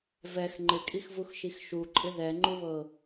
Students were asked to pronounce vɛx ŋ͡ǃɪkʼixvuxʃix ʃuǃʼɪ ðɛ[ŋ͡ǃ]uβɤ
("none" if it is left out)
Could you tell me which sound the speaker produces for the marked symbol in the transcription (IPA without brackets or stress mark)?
ŋ͡ǃ